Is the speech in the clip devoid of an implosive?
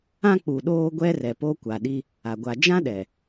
no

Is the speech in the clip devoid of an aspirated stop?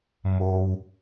yes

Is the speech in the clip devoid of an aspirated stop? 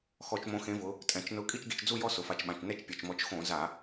yes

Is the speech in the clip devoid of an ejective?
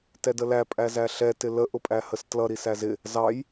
no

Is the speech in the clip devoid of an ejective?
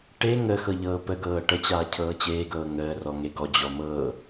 yes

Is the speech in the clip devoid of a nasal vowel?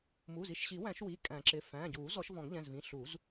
no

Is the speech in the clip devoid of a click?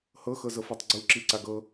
no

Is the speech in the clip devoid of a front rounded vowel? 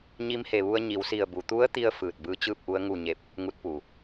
yes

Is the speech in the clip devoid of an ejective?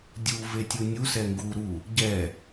yes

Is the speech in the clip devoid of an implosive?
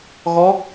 yes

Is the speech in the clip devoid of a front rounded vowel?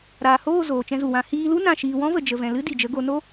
yes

